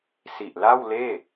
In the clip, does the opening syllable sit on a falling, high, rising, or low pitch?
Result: low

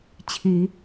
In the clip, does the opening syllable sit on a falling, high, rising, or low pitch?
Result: low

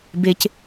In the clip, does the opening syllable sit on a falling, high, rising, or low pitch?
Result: high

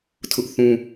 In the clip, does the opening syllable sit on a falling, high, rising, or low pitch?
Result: high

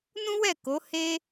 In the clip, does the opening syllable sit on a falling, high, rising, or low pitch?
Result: high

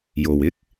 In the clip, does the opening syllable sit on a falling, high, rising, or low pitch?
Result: low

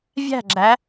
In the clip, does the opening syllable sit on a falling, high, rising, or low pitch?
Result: falling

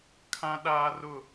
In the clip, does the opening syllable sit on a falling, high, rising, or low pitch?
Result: high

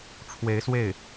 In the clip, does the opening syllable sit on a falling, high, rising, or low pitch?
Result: rising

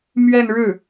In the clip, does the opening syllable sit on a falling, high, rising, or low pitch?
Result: falling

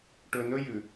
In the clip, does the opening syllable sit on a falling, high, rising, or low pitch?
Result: low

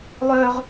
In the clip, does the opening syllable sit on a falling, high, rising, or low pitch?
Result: high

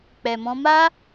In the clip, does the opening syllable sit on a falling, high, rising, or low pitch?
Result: low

